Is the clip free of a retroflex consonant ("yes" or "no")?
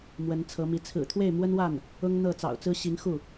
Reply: yes